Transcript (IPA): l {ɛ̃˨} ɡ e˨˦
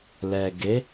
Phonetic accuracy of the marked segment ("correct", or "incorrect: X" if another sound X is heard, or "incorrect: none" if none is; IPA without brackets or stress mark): incorrect: ɛ˨